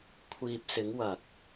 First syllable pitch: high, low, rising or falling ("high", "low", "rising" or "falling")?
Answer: low